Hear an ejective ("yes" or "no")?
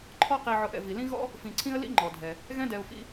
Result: no